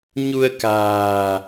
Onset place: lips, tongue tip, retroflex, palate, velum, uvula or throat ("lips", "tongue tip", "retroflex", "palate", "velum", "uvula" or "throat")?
palate